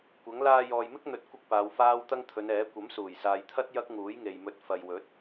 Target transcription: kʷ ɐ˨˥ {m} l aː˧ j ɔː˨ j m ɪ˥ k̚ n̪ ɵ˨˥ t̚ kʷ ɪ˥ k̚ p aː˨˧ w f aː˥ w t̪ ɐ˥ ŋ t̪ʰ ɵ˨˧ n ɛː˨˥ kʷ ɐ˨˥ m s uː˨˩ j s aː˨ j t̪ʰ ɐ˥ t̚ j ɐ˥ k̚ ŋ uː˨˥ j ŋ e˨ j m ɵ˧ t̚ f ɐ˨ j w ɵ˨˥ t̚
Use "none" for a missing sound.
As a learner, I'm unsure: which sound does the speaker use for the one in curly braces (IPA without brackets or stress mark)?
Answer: ŋ